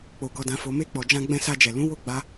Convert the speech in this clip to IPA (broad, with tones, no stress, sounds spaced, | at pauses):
k͡p o˨ ɡ ɔ˨ d ã˨ f o˨ m e˧ k͡p ɔ˨ d͡ʒ ã˧ ɡ͡b ɛ̃˧ s a˧ d͡ʒ ɛ˨ l ũ˨˦ w o˦˨ ɡ͡b a˧